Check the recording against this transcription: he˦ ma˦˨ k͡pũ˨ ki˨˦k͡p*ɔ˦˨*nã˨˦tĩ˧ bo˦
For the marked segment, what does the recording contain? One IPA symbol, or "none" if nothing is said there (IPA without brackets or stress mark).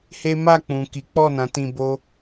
ɔ˦˨